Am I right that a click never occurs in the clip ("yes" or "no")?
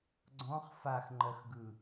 no